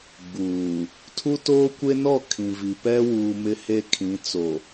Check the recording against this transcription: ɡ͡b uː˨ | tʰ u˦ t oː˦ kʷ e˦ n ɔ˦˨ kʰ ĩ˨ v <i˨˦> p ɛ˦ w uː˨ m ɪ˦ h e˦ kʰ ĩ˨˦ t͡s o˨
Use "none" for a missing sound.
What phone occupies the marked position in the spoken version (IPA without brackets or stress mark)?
i˨